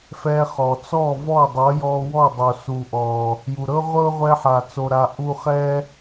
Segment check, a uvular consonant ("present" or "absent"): present